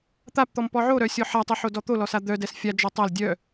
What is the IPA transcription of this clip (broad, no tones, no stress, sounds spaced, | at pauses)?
t̪ a p t̪ ɔ m p ɔ ʕ o ɾ œ sʲ ɔ ħ a tˤ ɛ ħ o d ɔ t̪ o l ɔ s a d̪ œ d ɛ s fʲ a d͡ʒ ɔ tˤ a l dʲ œ